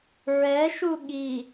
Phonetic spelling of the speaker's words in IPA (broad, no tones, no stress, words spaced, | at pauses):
ɹɛʃu ɠi